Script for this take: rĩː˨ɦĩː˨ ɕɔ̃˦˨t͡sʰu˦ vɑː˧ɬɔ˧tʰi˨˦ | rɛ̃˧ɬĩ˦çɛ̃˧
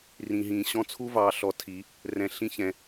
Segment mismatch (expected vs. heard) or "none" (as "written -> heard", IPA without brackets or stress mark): none